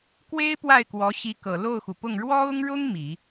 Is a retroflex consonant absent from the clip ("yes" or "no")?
no